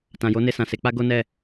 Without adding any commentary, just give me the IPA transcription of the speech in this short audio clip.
t ã˨ j o˨˦ n e˧ s ã˨ s e˨˦ k͡p a˦ ɡ o˦ n ɛ˦˨

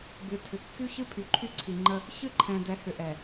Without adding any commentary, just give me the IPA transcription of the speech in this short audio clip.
b ɨ˨ tʰ ʏ˨ kː y˦ ç ɨ˦ pʰ y˨ ǃʰ y˦ ǀʰ i˨ ŋ͡ǃ ə˦ | ç ɨ˦ ǃʰ ɛ̃˨ d ɛ˨˦ h ʏ˨ ʔ ɛ˨

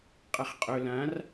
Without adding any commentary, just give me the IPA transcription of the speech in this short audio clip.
qʼ ɐ χ qʼ ɵ l ã r

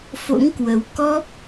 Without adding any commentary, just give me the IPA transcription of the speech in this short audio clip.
f o̰˧˥ ŋ k w ə˨˦ w k ɔ˦˥ p̚

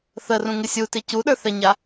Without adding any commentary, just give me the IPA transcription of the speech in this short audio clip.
θ ə r ũ ŋ ɪ sʲ u t ɪ c u ɗ ə˞ θ ɛ ɲ a

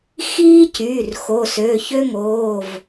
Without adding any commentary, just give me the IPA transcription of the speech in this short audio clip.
x iː˦ c y˩˧˩ r x o˩˧˩ s ø˩˧˩ ç ø˦ ŋ oː˩˧˩ v

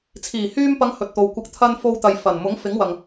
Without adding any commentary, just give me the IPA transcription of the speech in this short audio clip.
t͡sʰ iː˨˩ h yː˧ m p ɐ˨˧ ŋ h ɵ˨ t̚ t̪ o˨ w kʷ ɐ˧ k̚ t̪ʰ ɐ˧ n f o˧ w t̪ ɐ˨ j f ɐ˨˩ n m ʊ˨˥ ŋ f ɪ˨˥ ŋ w ɐ˨ ŋ

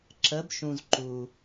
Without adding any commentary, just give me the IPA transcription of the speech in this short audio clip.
ǁ ə˩˧ b ʃ ũ˩ z ǃ u˩

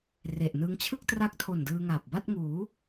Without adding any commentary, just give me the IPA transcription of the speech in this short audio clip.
r e˨˩ ʔ n ɯ˦˥ ŋ t͡ɕʰ ɯ˥˩ k̚ t r a˦˥ k̚ tʰ o˨˩ n d ɯː˧ ŋ aː˨˩ p̚ b a˥˩ t̚ ŋ uː˩˦

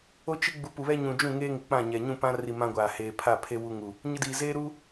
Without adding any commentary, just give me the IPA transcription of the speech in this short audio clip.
o˦ t͡ʃ i˦ ɡ͡b u˨ p u˨ β ɛ˦ ɲ ũ˨ d͡ʒ ũ˦˨ ŋ eː˦ ŋ ɪ˨ k͡p ã˦˨ ɲ ɛ˨ ɲ ũ˦˨ p ã˦ r i˨ m ã˦ ɡʷ aː˨ h eː˨ pʰ a˦˨ pʰ e˦ w u˦ ŋ u˨ | ɲ ɪ˦ d iː˨ z eː˦ ɾ u˦

